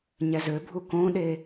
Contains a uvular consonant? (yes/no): no